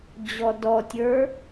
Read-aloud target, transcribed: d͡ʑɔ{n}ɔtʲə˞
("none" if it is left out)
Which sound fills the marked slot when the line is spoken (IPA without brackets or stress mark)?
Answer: d